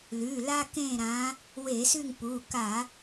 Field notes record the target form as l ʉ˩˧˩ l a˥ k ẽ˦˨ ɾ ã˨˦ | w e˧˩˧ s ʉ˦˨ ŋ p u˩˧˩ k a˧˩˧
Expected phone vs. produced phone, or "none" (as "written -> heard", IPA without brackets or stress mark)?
none